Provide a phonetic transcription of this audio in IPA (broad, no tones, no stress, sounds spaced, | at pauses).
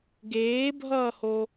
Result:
ɡ eː bʱ ʌː h o